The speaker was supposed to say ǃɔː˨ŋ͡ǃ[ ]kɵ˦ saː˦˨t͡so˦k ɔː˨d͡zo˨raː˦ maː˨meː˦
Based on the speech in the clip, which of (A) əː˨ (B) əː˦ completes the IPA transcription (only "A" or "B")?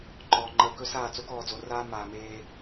A